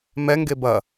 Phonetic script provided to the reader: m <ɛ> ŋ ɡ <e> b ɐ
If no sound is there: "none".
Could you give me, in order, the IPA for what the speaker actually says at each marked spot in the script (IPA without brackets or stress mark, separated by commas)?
ɛ, e